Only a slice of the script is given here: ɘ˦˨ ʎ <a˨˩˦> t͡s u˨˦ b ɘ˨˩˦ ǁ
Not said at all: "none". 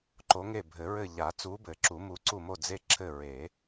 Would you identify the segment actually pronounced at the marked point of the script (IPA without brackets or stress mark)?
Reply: a˨˩˦